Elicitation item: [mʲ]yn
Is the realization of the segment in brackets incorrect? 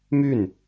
yes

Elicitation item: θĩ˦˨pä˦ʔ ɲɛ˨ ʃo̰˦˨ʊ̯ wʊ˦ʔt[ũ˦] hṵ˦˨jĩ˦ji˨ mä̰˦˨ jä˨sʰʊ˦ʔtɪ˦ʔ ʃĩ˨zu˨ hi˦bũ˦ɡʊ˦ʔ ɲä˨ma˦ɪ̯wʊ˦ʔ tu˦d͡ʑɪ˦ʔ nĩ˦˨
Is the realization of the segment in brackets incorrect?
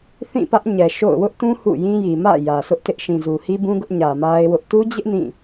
no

